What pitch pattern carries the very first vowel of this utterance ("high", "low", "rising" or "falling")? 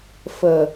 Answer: low